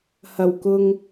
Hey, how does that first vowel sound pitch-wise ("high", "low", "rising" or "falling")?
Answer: low